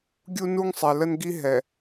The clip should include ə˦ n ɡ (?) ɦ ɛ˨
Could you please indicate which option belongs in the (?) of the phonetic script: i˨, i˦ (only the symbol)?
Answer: i˦